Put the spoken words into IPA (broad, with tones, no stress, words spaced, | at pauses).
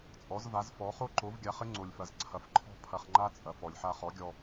t͡sʼɔ˩˥zva˩˥zfɔ˩˥ χo˥ǃo˩˥vɡʲa˩˥χɘ˥ ŋ͡ǀo˩lʲfɐ˩zǀʰɐ˩fǃʰɔ̤˧ pʰɐ˧χŋ͡ǃa˥ t͡sʼɐ˩fɔ˩lʲħa˧ χɔ˩˥ɡʲɔ˧